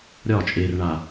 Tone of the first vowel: falling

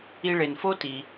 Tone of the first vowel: low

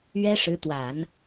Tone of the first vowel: high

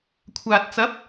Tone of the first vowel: low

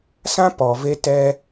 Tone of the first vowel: high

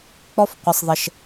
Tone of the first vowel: high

